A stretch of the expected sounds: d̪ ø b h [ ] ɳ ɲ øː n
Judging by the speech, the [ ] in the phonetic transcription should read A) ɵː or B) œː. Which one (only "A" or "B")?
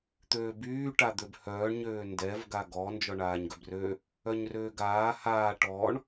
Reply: B